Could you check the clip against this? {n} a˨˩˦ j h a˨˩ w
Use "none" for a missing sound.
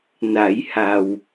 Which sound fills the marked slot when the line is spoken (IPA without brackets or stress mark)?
n